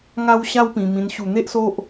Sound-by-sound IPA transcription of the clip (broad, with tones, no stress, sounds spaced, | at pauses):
ŋ a˦ w ɕ a˦ w p ĩ˧ m ĩ˧ n ɕ u˧ n̪ e˦ ʔ s o˦ ʔ